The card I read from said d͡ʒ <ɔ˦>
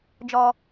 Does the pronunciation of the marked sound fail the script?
no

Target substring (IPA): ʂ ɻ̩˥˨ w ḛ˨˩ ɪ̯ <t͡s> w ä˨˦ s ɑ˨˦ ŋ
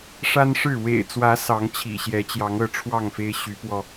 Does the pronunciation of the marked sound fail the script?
no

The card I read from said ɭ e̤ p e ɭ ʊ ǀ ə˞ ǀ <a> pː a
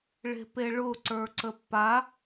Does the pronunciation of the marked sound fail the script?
yes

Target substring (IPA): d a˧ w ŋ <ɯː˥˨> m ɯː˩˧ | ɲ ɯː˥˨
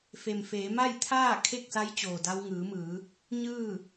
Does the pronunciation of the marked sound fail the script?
yes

